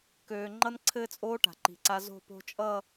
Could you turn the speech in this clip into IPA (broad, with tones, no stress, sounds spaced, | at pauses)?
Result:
k øː˨ ŋ͡ǃ ʌ˦ n ǀʰ ɘː˦ t͡sʼ oː˦ ʈ a̤˨ ǃ i̤˨ ǀ a˦ z o̤˦˨ p o̤˦ t͡ʃʼ ʌ˦˨